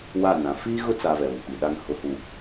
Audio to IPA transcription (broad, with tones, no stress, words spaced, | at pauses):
wa˦˨nã˨ fiː˦ɣʊ˦t͡sa˨ vɛ˨βʊ˨k͡pi˨ ɗa˨ŋhʊ˨hu˨